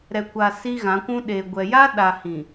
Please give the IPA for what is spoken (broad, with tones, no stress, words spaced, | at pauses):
ɾɛ˨kʷa˨ si˦ɣã˨˦kʷũ˦ ɗe˨ ɡʷɛ˨ja˦ ɗa˨ hĩ˨